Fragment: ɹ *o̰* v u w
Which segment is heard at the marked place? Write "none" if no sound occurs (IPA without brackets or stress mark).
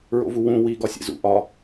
o̰